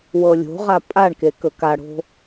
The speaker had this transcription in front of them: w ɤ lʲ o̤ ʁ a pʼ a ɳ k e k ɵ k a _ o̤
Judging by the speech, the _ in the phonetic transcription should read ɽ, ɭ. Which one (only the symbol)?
ɽ